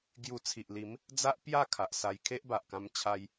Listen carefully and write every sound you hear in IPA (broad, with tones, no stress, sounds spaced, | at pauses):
ɡ j u˧ t͡sʰ i˨ ʔ l i˨˦ m | d͡z a˦ ʔ p j a˥˧ kʰ a˨ ʔ s a˧ j kʰ e˦ ʔ b a˨ ʔ k ã˧ m t͡ɕʰ a˧ j